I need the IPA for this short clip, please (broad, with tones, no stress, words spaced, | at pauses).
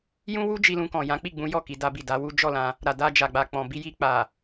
jũ˦wu˦d͡ʒi˧ lũ˧kɔ̃˨ jã˨˦ k͡pi˦˨ɡ͡bũ˨˦jɔ˦˨ ki˨˦da˦bi˦˨ da˨˦wu˦ d͡ʒɔ˦˨ lã˧ | ɾa˨ da˧ d͡ʒa˨ɡ͡ba˨k͡pɔ̃˨bi˧ ji˧k͡pa˨